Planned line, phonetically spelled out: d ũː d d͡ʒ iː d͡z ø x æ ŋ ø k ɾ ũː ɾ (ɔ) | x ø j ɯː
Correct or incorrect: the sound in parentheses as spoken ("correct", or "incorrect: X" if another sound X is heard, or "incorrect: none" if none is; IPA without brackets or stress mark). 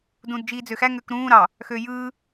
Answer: incorrect: ɑ